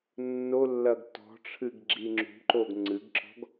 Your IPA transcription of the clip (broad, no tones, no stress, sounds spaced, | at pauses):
nː o lː ɐ ɡ t ɔ̤ ʈ͡ʂʰ ɨ ɡ ɡ͡ǁ i ŋ͡ǁ ṳ ǃ o ɡ ŋ͡ǀ ɨ ɡ ǁ ɔ̤ ɡ